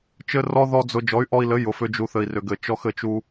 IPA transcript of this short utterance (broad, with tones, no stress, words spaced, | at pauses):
t͡ʃɘ˦rɔ˦ðɔ˦d͡zʊ˧ d͡ʒɔ˨˦y̯ʔɔ˧i̯lɘ˨˦ jʊ˨fʏ˧ d͡ʒu˨θɘ˨i̯rʏ˨ɡɘ˨ t͡ʃɔ˧xɘ˨t͡ʃu˧